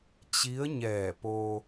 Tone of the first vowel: rising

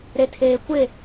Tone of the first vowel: low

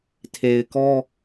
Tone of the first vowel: low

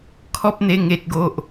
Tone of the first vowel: high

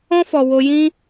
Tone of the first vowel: high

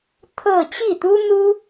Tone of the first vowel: falling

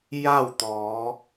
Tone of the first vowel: falling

